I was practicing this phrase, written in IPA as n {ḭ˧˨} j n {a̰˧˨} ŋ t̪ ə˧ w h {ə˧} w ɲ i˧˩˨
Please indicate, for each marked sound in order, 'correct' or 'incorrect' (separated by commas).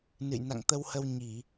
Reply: incorrect, correct, correct